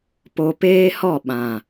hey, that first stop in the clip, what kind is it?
plain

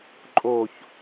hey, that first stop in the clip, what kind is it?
click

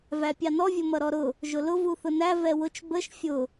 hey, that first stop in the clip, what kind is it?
plain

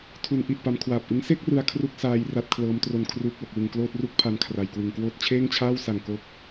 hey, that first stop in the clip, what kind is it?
aspirated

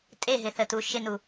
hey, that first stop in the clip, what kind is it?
ejective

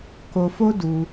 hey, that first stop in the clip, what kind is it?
plain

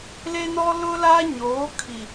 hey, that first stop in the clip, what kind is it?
aspirated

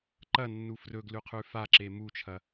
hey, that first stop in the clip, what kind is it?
click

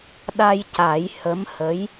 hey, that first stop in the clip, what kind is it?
implosive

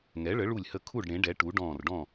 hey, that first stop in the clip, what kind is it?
aspirated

